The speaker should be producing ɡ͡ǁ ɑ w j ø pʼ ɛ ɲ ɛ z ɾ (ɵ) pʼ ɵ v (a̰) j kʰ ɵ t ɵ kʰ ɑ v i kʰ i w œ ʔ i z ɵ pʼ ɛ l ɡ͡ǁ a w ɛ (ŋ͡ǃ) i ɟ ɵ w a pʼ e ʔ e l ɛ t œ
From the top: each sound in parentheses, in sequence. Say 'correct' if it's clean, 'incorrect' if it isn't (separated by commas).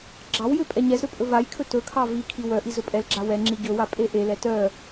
incorrect, incorrect, incorrect